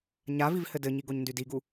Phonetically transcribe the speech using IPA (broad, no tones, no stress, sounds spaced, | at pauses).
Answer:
ɲ a v i v h ɘ d ɘ ɲ i ɡ o ɲ n d y d i ɡ u